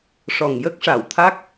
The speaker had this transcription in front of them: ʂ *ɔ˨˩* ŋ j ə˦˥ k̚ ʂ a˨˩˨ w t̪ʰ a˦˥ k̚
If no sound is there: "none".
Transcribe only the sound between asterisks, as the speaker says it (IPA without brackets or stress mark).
ɔ˨˩